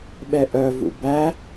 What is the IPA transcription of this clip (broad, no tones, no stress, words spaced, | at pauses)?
ɓɛʔœvṵ bæ